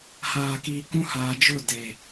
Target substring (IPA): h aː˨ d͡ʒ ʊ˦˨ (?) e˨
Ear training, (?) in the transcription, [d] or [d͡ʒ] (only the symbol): d